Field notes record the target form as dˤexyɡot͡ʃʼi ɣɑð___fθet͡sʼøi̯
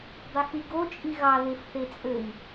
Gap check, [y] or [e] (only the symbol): e